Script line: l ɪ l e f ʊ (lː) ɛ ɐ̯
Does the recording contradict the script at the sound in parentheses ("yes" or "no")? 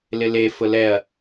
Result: yes